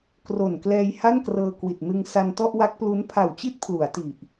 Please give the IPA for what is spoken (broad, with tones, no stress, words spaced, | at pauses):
kro˨˩n klɛː˧j ha˥˩nkrɤː˧kwi˨˩t̚nɯ˧ŋ sa˧ntɔ˥˩ʔwa˦˥k̚plu˦˥n pʰa˨˩wt͡ɕi˦˥t̚ pʰlu˩˦a̯ti˨˩ʔ